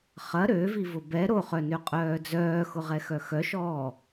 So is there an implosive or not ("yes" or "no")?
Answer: no